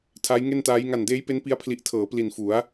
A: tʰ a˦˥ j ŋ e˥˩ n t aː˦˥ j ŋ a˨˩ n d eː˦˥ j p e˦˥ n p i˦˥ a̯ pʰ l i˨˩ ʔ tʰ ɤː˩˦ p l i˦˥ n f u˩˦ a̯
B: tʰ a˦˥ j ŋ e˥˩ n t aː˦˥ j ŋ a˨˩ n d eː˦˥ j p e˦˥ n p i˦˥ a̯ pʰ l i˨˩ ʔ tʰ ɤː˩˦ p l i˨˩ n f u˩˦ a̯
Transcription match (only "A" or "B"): B